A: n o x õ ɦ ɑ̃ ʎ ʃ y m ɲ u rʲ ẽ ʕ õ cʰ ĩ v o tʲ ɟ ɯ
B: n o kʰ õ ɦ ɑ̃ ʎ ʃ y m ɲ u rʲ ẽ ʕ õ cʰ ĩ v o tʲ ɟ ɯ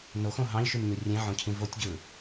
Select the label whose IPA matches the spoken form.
A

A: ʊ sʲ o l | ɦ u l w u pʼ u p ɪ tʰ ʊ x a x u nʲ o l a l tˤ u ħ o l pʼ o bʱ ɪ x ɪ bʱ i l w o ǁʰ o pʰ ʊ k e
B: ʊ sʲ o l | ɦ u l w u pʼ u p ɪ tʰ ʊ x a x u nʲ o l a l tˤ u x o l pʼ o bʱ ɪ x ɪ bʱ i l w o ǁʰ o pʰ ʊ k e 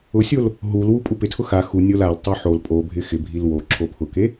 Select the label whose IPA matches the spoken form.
A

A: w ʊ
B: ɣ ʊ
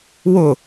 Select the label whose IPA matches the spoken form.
A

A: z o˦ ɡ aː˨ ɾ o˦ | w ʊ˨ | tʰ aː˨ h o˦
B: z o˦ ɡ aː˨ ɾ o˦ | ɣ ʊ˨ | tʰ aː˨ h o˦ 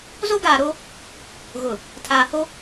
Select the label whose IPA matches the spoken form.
B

